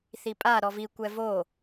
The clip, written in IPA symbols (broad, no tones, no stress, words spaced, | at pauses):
θipʼa ɾɔvi kʷɛvo